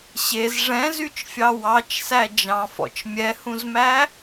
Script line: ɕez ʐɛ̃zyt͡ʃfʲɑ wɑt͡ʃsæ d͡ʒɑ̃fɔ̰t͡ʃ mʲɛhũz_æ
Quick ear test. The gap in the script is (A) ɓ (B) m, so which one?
B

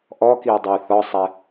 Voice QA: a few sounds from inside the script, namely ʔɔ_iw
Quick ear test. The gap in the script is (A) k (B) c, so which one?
A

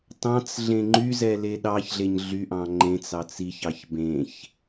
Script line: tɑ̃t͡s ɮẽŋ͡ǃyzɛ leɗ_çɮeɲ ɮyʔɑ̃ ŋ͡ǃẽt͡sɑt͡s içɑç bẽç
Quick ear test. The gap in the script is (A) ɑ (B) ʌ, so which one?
A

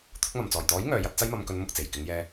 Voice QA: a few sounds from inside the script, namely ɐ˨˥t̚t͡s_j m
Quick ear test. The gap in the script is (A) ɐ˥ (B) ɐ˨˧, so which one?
A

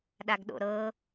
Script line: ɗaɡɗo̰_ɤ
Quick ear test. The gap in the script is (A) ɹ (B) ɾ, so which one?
B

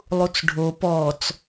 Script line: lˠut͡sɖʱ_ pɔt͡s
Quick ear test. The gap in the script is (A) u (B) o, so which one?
B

